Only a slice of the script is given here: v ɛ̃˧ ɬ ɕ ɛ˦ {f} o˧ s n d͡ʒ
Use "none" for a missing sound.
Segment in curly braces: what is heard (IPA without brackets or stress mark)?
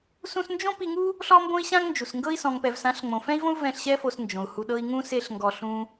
f